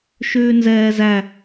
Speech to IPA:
ʃ ʉː n z ɛː z æ

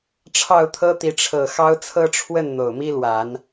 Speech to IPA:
ʈ͡ʂʰ ɑ˥˨ ʊ̯ t̪ʰ ɤ˦ t̪ i˨˦ ʈ͡ʂʰ ɤ˨˩ x ɑ˦ ʊ̯ t͡sʰ ɤ˦ ʈ͡ʂʰ w ə˥˨ n n̪ o˨˩ ʊ̯ m i˦ l w a˨˦ n

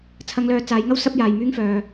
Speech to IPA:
t͡sʰ ɐ˨˧ ŋ l œː˨ t͡s aː˨˧ j ŋ ɐ˥ w s ɐ˥ p̚ j aː˨ j m yː˥ ŋ f œː˨

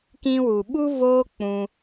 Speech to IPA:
k ĩ˧ w u˨ ɓ u˦ v oː˦ k͡p ũ˧

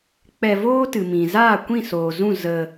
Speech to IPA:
k͡p ɛ˧ v oː˦ t ɨ˨ m ĩ˨ z aː˦˨ kʷ ĩ˦˨ s oː˨ z ũ˦˨ z ə˧

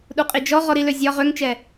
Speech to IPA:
ɗ u qʼ i d͡ʒ ɔ ʁ ɔ ɾ i l ø zʲ ɒ ʁ ø ŋ t͡ʃ ɛ

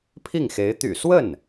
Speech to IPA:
pʰ i˥˩ ŋ x e˧˥ ɪ̯ t̪ y̰˨˩ s w ə˥˩ n

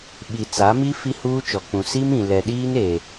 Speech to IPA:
ɓ i˨ t͡s a˨˦ m i˦ f i˦ h uː˦ t͡ʃ ɔ˨ k͡p ũ˨ s i˦ m ĩ˨ l ɛ˨ ɗ iː˦ n e˨

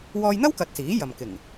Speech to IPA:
w ɔː˧ j n̪ ɐ˥ w k ɐ˨ t̚ s iː˨˥ j ɐ˨ m k ɪ˨˩ ŋ

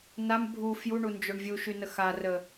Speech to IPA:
n a m bʱ u f j u ɳ u n d͡ʒ o ɳ vʲ u ʃ y n ə x a r ə

